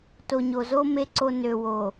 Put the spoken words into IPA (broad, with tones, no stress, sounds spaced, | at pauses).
t o˨ ɲ o˨ z o˦ m e˦ ǀ o˦ n ø˨ w o˨